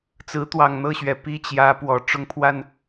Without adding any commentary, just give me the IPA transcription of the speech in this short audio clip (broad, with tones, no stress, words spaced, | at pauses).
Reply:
t͡sɹ̩˧˥t̪wɑ˨˩ŋn̪ɤ˥˩ɕɥɛ˨˩ pi˥˩t͡ɕjä˧˥ pwɔ˨˩ ʈ͡ʂʊ˥ŋpʰwa˥˩n